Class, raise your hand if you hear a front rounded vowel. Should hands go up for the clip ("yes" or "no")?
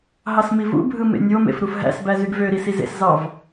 yes